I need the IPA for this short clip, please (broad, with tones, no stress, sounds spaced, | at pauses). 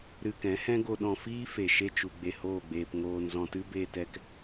ɾ ɨ˧ k ɛ̃˨˦ h ɛ̃˦ ɡ o˧ ɗ ɔ̃˧ f iː˦ f e˨ ʃ e˧ t͡ʃ u˨ ɡ͡b e˧ h oː˦˨ ɡ͡b eː˧ p ŋ oː˧ n z ɔ̃˧ t ɨ˦ b eː˧ t ɛ˧ k